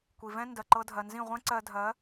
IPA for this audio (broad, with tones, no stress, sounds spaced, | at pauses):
kʷ i˨ v ɛ̃˦ n d ɜ˨ ǃ ɤ˧ dʱ ɜ˨ n z ĩ˦˨ ʁʷ ɛ̃˦ ǀ ɜ˧ dʱ ɜ˨˦